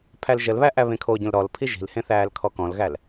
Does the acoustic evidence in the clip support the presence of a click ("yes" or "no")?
no